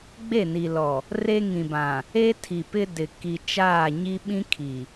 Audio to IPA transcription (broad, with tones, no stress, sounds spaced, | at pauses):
ɡ͡b e˦˨ n i˨ l ɔ˨ | r e˦ ŋ ĩ˨ b ã˨ | e˦ tʰ i˨ p ɪ˦ d ɪ˨ k i˨ t͡ʃ aː˦˨ ɲ i˦ ɓ ĩ˦ kʰ i˨